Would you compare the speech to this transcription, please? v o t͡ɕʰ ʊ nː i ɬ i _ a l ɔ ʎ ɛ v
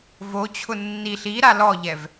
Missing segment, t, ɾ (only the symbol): ɾ